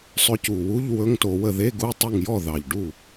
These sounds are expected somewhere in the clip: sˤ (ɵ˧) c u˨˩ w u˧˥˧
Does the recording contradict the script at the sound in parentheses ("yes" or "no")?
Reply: no